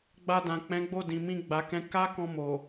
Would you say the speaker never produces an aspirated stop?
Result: yes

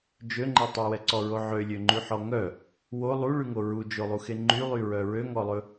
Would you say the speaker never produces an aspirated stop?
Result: yes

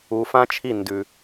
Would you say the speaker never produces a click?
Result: yes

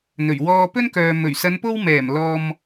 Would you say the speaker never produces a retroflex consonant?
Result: yes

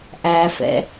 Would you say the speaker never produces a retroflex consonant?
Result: yes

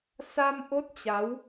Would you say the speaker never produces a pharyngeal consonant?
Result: yes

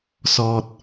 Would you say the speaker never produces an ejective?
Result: yes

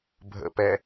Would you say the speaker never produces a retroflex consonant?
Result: yes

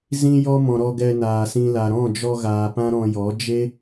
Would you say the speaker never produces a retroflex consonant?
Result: yes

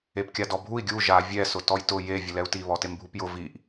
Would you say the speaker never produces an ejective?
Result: yes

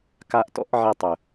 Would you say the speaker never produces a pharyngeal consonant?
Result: no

